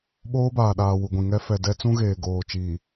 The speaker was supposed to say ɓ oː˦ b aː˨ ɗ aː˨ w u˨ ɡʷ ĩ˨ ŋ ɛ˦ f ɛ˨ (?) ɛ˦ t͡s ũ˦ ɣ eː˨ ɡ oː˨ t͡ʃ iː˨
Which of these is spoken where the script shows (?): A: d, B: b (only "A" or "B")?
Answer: A